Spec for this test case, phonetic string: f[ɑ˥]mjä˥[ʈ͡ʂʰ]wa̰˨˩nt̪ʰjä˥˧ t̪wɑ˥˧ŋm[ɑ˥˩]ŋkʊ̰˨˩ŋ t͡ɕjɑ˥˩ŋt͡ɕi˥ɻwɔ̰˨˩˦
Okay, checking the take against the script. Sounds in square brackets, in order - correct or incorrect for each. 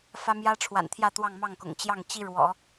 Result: incorrect, correct, correct

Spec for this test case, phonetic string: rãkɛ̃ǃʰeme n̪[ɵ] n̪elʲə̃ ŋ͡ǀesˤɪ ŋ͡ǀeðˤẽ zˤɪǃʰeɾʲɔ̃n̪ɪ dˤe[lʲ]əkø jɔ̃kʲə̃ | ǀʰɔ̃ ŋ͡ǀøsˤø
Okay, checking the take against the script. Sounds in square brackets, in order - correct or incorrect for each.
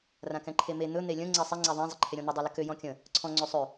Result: correct, incorrect

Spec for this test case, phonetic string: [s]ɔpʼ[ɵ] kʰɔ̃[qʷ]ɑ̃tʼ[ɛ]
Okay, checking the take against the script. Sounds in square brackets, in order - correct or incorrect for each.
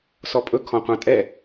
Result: correct, correct, correct, correct

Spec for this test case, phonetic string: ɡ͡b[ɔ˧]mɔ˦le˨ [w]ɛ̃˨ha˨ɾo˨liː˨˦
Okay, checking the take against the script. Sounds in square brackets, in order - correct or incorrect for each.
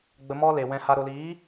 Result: incorrect, correct

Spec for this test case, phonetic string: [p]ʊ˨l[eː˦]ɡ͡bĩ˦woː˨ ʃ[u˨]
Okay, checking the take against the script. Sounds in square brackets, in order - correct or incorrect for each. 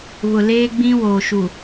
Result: incorrect, correct, correct

